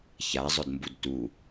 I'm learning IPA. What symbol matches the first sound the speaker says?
ç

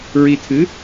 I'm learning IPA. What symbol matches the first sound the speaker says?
ɹ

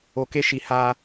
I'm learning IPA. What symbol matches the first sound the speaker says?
o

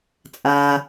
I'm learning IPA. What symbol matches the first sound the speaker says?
t͡sʼ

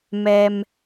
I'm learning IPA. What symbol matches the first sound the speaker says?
m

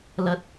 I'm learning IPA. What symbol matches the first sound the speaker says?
l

